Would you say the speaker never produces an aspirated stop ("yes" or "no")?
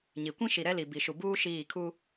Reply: no